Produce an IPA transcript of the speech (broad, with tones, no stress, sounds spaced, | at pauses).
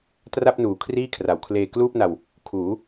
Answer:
t r a˥˩ p̚ n uː˩˦ kʰ r iː˥˩ kʰ r a˩˦ w kʰ l eː˧ k l uː˥˩ p̚ n a˧ w | kʰ uː˩˦